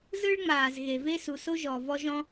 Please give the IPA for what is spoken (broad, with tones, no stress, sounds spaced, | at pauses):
z ɯ˥ ɭ ŋ͡m aː˩ z ɣ e˩ v e˥ s u˩ s o˥ ʒ ɔː˩ v ɔ˥ ʒ ɔ̃˥